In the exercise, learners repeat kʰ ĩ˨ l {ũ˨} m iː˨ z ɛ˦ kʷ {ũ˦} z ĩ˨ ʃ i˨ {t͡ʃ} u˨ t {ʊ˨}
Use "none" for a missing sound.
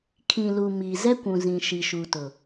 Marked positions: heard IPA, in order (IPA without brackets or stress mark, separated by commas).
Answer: u˨, ũ˨, ʃ, ʊ˨